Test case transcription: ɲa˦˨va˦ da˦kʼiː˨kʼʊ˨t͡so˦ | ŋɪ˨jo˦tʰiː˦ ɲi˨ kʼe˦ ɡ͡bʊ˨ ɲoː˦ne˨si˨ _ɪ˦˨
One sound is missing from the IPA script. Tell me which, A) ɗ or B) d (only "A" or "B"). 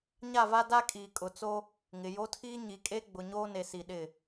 A